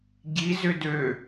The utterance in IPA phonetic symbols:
ɟ i z ʏ d ø

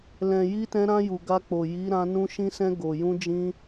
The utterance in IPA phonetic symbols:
l ɛ̃˨ j i˧ t ɛ̃˧ ɾ ã˧ j u˨ ɡ a˧ k͡p o˨ j i˨˦ ɾ ã˧ n ũ˧ ʃ ĩ˧ s ɛ̃˧ ɡ o˨ j ũ˧ d͡ʒ ĩ˧

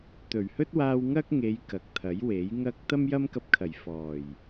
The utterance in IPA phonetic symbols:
t̪ ɵ˨˩ ɥ h ɵ˥ t̚ w aː˧ w ŋ ɐ˥ k̚ ŋ e˨˧ j k ɐ˨ k̚ t̪ʰ ɐ˨˥ j w e˨˥ j ŋ ɐ˥ k̚ t̪ ɐ˥ m j ɐ˥ m k ɐ˧ p̚ kʰ ɐ˨˩ j f ɔː˨˩ j

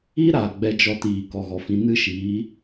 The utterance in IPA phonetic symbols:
i˦ ɾ aː˨ ɡ͡b ɛ˧ d͡ʒ ɔ˧ t iː˨ k ɔ˨ ɣ ɔ˨ f ĩ˧ n ɨ˦ ʃ iː˨˦

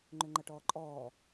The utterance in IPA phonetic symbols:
ŋ͡ǃ ʏ ŋ͡ǃ ɐ ʈ ɔː ǃʼ ɔː

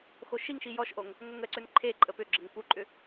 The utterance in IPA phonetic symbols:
x o ʃ i ŋ ʃ i j ɔ ʃ ʔ o ŋ | ŋʷ ə ŋ ə ǀ ʏ n ǃʰ e ǃʼ ə p ʏ ɡ͡ǁ ə ŋ p u ǃʼ ʏ

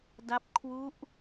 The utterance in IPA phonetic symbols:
d a˦˥ p̚ kʰ w u˦˥ ʔ

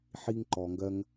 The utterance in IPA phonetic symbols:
ħ iː˧ ŋ ǃ ɔː˩ ŋ ɡ ɜ˧ ŋ

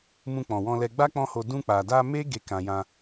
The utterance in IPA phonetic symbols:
m ũ˧ k͡p ɔ̃˨ w ɔ̃˧ l ɛ˧ ɡ͡b a˦ k͡p ɔ̃˦ h o˧ d ũ˧ k͡p a˨ d a˧ m e˦ ɡ e˧ k ã˨ j ã˧

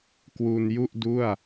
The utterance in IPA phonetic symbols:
k w u˧ n j u˥˩ ʔ d u˥˩ a̯

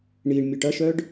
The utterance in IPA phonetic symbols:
ɳ i ɳ mʲ u ʈ ɐ ʃ œ ɖ

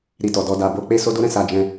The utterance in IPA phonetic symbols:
ɾ i˧ t ɔ˨ d ɔ˧ d a˨ b o˧ k͡p e˦ s o˧ d o˦ ɾ ɛ̃˧ s a˧ d͡ʒ ɛ̃˧

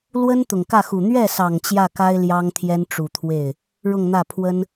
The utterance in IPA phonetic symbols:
l w ə˥ n t̪ ʊ˨˩ ŋ k ä˥˩ x u˨˩ n̪ ɥ ɛ˥˩ s ɑ˨˩ ŋ t͡ɕ j ä˥˩ k a˥ ɪ̯ l j ɑ˥ ŋ t̪ʰ j ɛ˥ n ʈ͡ʂ u˨˩ t̪ʰ w e˥˩ ɪ̯ | ɻ ʊ˥˧ ŋ n̪ ä˥˩ pʰ w ə˥ n

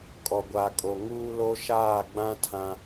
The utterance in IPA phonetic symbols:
kʼ ɔ˨ ɡʷ aː˨ kʼ o˨ ŋ uː˦ l o˦ ʃ aː˦˨ ɡ͡b ã˦ tʰ ã˦

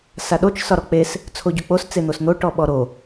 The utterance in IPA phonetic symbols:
s a ɗ o t͡ʃ s ɒ ɾ ɔ k͡p e s | t͡sʰ o ɟ o k͡p o s t͡s e n̪ o s n̪ o ʈ ɔ ɓ ɔ ɾ o

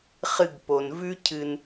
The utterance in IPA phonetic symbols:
χ ɨ˧ ɡ p o˩ n v ʉ˥ cʰ ɨ˧ n

